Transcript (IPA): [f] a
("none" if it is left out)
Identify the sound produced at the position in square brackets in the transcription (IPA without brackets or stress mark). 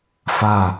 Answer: f